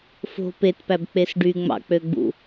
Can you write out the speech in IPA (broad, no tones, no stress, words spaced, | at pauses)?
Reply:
fo̤ petpæbk͡pes ɖyŋ͡mɑ̰k͡pøɡ͡bṵ